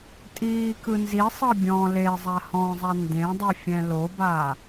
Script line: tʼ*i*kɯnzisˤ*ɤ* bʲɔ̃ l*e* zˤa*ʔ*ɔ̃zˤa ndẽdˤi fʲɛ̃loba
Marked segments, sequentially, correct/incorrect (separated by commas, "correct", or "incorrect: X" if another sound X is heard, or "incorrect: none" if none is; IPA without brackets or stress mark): incorrect: iː, correct, correct, incorrect: h